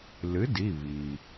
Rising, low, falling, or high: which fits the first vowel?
rising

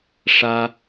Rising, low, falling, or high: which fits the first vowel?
high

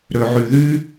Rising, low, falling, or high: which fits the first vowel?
low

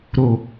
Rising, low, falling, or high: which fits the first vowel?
low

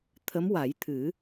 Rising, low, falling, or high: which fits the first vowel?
rising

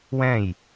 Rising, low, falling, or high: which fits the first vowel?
falling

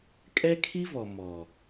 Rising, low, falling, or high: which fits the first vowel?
high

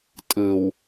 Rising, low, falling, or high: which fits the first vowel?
low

